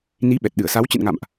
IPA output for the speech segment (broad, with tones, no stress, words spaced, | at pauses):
ni˨˦ɓɛ˨˩t̚ ɗɨ˧˩ə̯sa˨˦w t͡ɕɨ̰˧˨nŋa̰˧˨mʔ